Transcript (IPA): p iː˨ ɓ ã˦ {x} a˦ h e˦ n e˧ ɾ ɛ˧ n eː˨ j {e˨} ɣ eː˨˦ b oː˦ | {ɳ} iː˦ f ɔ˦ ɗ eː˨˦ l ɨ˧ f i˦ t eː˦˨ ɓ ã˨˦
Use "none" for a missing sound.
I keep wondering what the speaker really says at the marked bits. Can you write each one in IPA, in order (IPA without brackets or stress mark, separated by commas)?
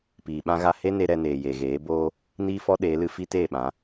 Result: ɣ, e˨, n